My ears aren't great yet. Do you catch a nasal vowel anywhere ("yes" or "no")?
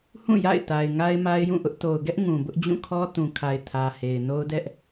yes